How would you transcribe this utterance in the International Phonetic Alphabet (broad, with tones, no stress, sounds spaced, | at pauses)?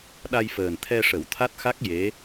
ɗ a˧ j f əː˨˩ n t̪ʰ ɛ˧ ʂ ə˨˩˦ w t̪ʰ a˦˥ t̚ x a˦˥ k̚ j e˧˥